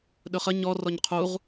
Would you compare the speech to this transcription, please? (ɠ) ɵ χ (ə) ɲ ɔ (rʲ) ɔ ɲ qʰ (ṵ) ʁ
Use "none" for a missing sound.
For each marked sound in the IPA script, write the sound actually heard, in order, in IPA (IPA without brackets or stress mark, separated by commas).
ɗ, ə, r, u